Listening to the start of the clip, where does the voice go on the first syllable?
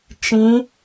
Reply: rising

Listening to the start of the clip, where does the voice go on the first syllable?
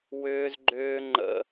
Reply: high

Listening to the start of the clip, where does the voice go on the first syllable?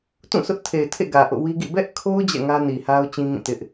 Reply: falling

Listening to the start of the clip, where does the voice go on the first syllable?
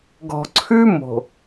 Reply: low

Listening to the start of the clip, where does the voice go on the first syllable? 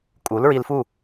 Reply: rising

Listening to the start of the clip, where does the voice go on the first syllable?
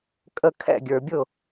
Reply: falling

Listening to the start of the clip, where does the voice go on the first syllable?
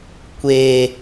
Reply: low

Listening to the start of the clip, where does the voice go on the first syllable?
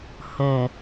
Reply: low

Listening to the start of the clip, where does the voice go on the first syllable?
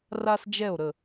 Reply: high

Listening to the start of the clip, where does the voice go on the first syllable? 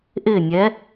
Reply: falling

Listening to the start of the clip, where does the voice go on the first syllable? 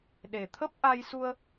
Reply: low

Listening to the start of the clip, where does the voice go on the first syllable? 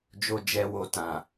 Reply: low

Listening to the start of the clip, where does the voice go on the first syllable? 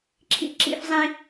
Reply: high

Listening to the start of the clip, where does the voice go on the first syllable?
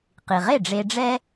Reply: low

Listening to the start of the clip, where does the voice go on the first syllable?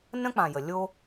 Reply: high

